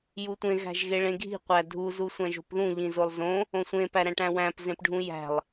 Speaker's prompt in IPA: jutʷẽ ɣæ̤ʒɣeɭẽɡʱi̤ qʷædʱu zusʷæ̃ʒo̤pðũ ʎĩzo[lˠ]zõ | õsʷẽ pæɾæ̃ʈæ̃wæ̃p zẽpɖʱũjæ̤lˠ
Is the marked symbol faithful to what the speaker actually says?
yes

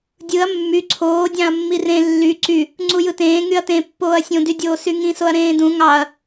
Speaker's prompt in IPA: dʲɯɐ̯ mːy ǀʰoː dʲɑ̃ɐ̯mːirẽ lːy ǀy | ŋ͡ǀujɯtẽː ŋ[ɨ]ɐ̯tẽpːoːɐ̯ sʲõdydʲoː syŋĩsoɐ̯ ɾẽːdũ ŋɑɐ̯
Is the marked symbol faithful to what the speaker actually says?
no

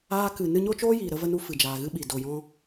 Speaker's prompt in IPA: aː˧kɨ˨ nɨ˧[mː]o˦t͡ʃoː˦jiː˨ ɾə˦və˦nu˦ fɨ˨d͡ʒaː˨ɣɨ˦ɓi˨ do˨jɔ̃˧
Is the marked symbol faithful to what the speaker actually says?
no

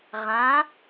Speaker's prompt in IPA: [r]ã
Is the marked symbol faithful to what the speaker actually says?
no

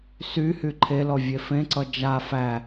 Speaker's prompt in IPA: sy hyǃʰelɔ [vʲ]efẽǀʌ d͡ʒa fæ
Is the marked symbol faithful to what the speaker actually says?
yes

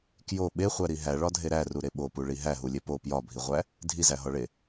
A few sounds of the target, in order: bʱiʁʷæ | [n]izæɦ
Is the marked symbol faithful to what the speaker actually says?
no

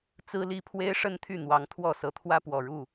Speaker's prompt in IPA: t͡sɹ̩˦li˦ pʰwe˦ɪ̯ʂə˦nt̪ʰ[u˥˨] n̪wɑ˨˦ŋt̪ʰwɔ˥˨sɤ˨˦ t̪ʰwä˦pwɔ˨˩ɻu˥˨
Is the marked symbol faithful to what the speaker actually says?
no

